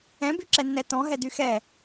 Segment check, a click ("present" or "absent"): present